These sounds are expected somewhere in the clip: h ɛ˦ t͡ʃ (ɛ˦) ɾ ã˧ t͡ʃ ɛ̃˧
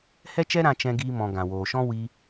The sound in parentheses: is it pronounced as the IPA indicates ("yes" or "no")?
yes